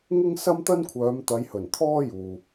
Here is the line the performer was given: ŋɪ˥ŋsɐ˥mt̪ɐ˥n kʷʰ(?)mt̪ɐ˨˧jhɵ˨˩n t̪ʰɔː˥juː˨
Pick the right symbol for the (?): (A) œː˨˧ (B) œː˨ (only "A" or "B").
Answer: A